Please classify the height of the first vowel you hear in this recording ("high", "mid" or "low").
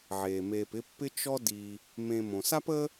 mid